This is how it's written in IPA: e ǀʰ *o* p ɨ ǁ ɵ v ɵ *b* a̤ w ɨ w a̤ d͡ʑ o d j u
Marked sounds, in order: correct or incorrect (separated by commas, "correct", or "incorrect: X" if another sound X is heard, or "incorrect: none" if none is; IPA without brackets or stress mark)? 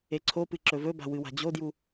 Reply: correct, correct